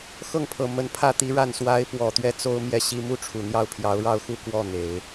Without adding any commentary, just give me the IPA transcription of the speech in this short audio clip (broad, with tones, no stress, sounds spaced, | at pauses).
x ɤ˥˩ ŋ pʰ ɤ˨˩ m ə˧˥ n pʰ ä˥˩ t̪ i˧˥ ɻ a˥˩ n s w a˧˥ ɪ̯ p w ɔ˨˩ t̪ ɥ ɛ˥˩ t͡s o˥ ʊ̯ m j ɛ˥˩ ɕ i˥ m u˥˩ ʈ͡ʂʰ u˨˩ n̪ j ɑ˥˩ ʊ̯ pʰ j ɑ˧˥ ʊ̯ ɻ ɑ˥˧ ʊ̯ x u˥˧ k w ɔ˥˩ n̪ e˨˩˦ ɪ̯